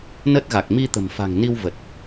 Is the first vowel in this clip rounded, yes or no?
no